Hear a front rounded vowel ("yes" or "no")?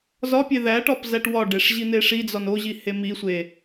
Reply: no